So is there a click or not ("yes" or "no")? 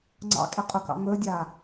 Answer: yes